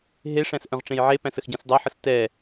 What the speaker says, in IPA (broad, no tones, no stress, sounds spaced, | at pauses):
ɦ e ʂ æ̃ s ʔ œ̃ ʁ ʈ͡ʂ ẽ j ʕ e p æ̃ s ə x ɟ ɛ̃ s dˤ œ ħ ə s t ɛ